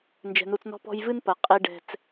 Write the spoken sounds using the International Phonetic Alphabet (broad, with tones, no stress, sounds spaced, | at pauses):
n d͡ʒ ɛ̤˧ n u˧ t͡s n ɔ̤˦ p ɔ̤˦ j v ɨ˦ n p ɐ˨˦ qʼ i˧ ɖ ɛ̤˧ t͡s